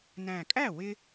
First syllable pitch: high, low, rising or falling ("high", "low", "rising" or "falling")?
low